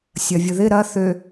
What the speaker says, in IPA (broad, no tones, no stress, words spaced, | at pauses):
sʲɐvʲʊðɪ ɾɐ θø